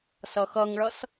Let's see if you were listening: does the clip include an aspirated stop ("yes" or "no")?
no